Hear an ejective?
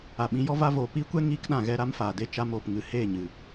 no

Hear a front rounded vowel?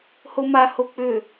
yes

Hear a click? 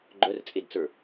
yes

